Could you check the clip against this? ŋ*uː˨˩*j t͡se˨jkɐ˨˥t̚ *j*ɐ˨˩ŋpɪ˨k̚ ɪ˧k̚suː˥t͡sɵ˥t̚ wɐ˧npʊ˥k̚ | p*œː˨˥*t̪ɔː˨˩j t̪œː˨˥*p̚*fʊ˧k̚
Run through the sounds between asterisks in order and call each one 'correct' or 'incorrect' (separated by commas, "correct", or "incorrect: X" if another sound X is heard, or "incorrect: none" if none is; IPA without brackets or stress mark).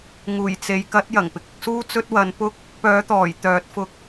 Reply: correct, correct, correct, incorrect: t̚